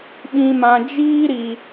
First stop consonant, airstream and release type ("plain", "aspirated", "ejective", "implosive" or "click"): implosive